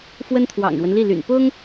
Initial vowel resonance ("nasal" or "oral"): oral